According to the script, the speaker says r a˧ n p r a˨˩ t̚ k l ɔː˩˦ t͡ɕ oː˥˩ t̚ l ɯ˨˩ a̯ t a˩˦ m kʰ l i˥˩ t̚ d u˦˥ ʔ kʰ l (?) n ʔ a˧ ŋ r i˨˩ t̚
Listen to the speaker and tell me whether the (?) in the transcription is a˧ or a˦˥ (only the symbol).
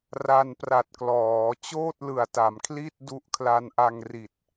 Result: a˧